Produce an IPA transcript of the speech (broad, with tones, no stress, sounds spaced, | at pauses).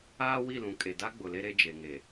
aː˦ w i˦˨ l ũ˨ kʼ e˨ d a˦ ɡ͡b ʊ˨ l e˦ ɾ e˦ d͡ʒ e˨ ŋ e˨